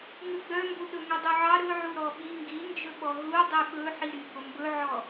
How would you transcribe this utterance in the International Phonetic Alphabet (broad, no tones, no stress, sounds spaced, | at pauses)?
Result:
ŋ ʉ ɡ͡b œ m b u ɗ ɵ ŋ ʉ dˤ u ʕ ɑ ɾ ɵ ʕ u ɾ ɔ ɓ i ŋ ɡ i n d͡ʒ ɵ ɓ ɔ ɦ u dˤ y ɓ ɵ ħ i ɾ y b o m b ɵ ʕ ɔ